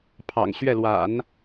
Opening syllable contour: low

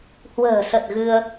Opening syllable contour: low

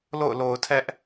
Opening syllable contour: falling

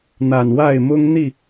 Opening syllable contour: low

